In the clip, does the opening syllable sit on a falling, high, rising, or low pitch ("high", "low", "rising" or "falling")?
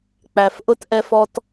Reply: low